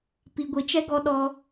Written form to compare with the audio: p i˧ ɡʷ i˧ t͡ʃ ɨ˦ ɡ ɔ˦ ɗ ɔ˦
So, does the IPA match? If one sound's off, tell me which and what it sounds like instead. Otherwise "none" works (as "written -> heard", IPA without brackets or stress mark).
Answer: ɨ˦ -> ɛ˦